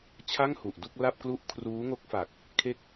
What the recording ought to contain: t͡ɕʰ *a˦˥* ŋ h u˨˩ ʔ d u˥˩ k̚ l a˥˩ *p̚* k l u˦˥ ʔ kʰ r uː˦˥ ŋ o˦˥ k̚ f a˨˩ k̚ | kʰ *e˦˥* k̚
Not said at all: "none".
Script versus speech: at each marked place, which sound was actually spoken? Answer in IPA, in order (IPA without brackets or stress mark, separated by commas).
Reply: a˥˩, p̚, e˦˥